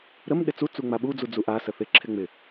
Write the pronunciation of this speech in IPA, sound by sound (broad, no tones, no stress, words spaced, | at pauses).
ɾəm ɗɪt͡su t͡suŋ͡maɓu d͡zud͡zuʔa səθɪ ǁʰɪŋ͡mɪ